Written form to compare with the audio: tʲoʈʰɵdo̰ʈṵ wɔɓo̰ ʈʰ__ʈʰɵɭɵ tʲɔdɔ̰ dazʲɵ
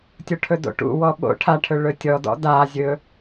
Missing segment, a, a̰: a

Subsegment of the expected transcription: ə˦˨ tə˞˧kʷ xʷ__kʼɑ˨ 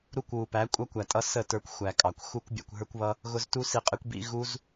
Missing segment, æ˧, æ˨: æ˨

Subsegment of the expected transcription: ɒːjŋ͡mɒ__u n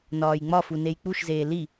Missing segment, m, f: f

